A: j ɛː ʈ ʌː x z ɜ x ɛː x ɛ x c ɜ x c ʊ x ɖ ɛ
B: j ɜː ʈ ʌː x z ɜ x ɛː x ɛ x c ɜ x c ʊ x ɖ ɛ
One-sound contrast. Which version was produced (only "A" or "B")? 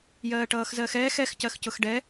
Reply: B